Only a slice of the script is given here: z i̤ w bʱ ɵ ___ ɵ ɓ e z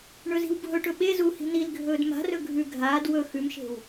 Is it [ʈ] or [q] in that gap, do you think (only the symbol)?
ʈ